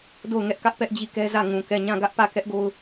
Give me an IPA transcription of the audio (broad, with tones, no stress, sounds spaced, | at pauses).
d o˦˨ ʊ̯ ŋ ɛ˦ ʔ k ä˦ ʔ p ɛ˦ ʔ d͡ʑ i˦˨ k ɛ˦ z ä˦˨ ŋ ũ˨ k ɛ˦˨ ɲ ã˦˨ ɡ ä˦ ʔ p ä˦˨ k ɛ˦ ʔ ɡ o˦ ʊ̯